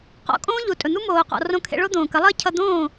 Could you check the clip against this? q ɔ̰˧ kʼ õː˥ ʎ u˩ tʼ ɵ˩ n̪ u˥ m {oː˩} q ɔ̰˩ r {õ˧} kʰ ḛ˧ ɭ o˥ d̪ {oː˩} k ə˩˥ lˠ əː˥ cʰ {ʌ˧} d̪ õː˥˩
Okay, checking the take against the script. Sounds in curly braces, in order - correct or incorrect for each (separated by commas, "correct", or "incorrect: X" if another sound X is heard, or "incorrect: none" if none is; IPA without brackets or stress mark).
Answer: correct, correct, incorrect: õː˩, correct